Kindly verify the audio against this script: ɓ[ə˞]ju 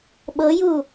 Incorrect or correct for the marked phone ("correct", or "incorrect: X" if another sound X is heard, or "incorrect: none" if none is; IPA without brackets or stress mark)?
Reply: incorrect: ɤ